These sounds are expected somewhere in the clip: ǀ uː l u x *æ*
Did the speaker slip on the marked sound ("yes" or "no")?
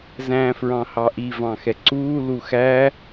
no